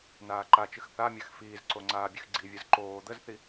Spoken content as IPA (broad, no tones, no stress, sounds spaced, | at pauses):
n aː ǃ a t͡ʃ ɨ x θ a mʲ a x f iː z ǀ o ŋ͡ǀ aː bʲ ɨ x ɡ͡ǀ i vʲ ɯ z ǃ oː d̪ ə z θ i